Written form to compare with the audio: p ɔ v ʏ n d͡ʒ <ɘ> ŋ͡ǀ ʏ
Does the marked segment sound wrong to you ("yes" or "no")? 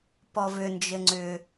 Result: no